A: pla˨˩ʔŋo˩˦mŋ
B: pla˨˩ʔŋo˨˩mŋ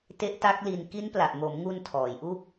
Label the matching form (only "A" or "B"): A